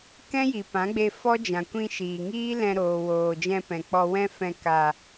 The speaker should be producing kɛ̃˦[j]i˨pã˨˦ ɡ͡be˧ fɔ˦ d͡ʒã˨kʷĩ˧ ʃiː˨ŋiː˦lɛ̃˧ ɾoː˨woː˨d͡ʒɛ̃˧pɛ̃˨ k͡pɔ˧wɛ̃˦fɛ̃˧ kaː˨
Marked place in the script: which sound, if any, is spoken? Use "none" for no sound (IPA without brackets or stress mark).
j